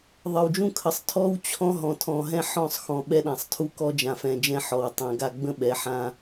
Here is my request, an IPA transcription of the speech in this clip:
ðˤə˨wd͡ʒũ˦kʰə˨˦sˤ tʰɔ˦w t͡ɕʰɔ̃˦ ɦɔ̃˨tʰɔ̃˨ɦɛ̃˦ ħɔ̃˦˨sˤxɔ̃˨ ɓɛ˦ɗã˨sˤtʰu˦ kɔ˦d͡ʒã˨fɛ̃˨ d͡ʒɛ̃˦ħɔ˨wtˤɛ̃˨ɡa˦ ɡ͡bə̃˦ɓɛ˨˦ ħã˦

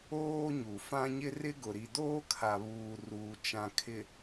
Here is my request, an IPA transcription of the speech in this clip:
oː˦ɲu˨fã˦ɲɪ˦ rɪ˦ɡʊ˨ɾi˨ doː˦kʰa˨βuː˨ ruː˨t͡ʃã˨ kʰɪ˨

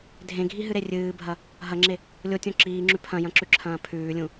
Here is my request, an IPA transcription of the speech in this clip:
dʱẽɡʱiɦɨɾe rʲɨːbʱɐ | ɦɐŋ͡ǁe | lʲotʲõ ǁiːŋ͡ǁʉ pʰɐ̃jɐ̃ǁʉǁʰɐ̃ː pʰʉːlʲũ

